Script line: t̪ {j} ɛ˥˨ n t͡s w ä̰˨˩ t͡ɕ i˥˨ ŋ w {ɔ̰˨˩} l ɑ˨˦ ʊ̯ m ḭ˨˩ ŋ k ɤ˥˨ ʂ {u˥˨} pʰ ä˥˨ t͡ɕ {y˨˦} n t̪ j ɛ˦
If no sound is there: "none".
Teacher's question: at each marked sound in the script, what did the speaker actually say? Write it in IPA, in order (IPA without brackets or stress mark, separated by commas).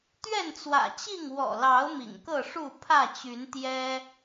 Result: ɥ, ɔ̰˨˩, u˥˨, y˨˦